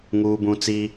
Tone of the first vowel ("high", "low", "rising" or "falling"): high